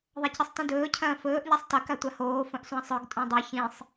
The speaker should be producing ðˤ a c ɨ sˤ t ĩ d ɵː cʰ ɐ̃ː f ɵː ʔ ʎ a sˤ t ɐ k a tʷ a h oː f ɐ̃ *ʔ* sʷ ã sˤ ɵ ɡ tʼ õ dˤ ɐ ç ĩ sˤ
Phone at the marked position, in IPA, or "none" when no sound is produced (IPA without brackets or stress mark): ʔ